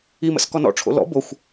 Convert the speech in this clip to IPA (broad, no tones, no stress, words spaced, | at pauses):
imə̰s kɔnɔ̰ʈ͡ʂʰo̰ lɔ̰ boxʷ